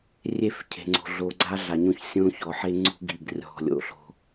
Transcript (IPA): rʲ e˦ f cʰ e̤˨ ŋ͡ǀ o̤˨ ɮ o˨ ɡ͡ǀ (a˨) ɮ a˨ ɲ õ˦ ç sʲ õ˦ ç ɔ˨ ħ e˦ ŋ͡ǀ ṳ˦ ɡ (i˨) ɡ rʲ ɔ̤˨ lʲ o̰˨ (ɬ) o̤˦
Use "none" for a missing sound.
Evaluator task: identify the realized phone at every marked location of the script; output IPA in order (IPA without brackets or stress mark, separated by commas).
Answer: a˦, i˨, ɬ